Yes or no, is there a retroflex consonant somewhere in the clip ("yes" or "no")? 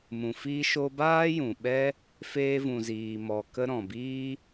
no